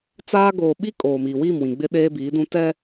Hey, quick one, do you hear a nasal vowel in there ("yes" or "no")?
yes